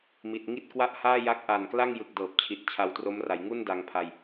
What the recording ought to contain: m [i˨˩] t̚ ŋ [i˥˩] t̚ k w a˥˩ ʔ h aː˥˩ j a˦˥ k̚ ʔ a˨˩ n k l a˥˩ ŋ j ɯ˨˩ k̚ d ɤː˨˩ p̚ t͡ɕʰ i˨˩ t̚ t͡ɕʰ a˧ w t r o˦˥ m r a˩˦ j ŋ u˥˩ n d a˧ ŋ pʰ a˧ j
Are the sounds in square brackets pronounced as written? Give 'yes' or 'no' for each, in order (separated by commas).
yes, yes